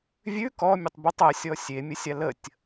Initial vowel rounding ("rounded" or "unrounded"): rounded